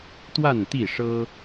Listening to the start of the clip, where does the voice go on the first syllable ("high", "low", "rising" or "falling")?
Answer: falling